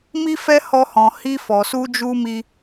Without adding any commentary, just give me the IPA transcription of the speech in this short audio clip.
mi˦fɛ˦ hɔ˦hɔ̃˧ hi˧fɔ˨su˧d͡ʒu˧ mi˦

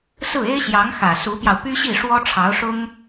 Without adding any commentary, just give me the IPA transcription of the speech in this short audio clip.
sɹ̩˥˩e˥ɪ̯ɕjɑ˧˥ŋ xä˨˩ su˧˥pjɑ˧ʊ̯ py˥ɕi˥˩ ʂwɔ˥ʈ͡ʂʰɑ˧˥ʊ̯ʂʊ˥ŋ

